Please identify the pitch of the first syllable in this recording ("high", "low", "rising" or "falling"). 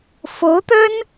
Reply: rising